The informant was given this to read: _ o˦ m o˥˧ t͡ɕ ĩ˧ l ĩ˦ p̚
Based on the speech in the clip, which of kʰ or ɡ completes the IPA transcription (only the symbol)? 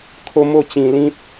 kʰ